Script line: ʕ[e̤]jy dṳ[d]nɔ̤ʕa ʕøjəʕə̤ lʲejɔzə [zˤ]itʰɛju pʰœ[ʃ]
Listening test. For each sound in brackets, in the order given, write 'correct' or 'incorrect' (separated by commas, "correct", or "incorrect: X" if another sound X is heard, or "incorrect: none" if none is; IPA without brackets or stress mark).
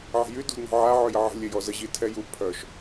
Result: correct, correct, incorrect: ʑ, correct